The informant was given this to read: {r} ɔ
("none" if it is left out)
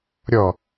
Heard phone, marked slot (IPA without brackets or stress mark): ɾʲ